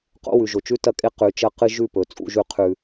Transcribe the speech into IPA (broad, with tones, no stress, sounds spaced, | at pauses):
q o̰˦ w ʉ˨ ʒ o˨ t͡ʃ ʉ˦ t ɐ˦ kʼ e˦ q ʉ˨ t͡ʃ ɐ˦ q ɨ˦ ʒ ʉ˦˨ p ɵ˨ t͡sʼ ṵ˦ ʒ ʉ˦ qʰ ʉ˦